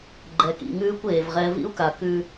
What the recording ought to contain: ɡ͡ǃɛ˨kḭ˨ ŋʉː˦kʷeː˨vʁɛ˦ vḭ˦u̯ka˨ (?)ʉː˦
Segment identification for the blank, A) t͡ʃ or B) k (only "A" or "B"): B